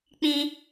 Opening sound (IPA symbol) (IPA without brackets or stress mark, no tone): k͡p